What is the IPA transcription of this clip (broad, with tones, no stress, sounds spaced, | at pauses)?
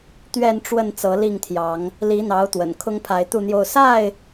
t̪ ɥ ɛ˥˨ n ʈ͡ʂ w ə˥˨ n t͡s ɤ˨˦ l i˥˨ ŋ t̪ʰ j ɑ˨˦ ŋ | l i˨˦ n̪ ɑ˨˦ ʊ̯ t̪ w ə̰˨˩ n kʰ ʊ˦ ŋ pʰ a˨˦ ɪ̯ t̪ u˥˨ n̪ j o˥˨ ʊ̯ s a˥˨ ɪ̯